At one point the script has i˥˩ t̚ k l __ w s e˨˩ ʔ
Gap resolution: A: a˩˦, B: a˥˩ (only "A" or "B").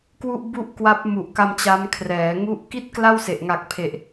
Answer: B